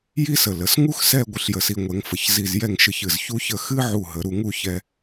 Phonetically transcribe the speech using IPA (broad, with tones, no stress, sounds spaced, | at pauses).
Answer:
j i˥ s ə˧˩ l ə˩˧ s ŋ u˥ x s ɛ˥˧ ɡʷ ɨ˧ ɬ j ə˧˩ s i˧ ŋʷ ɛ˩˧ ŋ f ə˩˧ ç z i˧˩ z j ɛ˥˧ ŋ ʃ ɨ˧ ç ɨ˧˩ z ç u˥ ç ə˥˧ x ɨ˥ ʕ u˧˩ ɦ ə˩˧ ɾ u˧ ŋ u˥˧ ç ɛ˧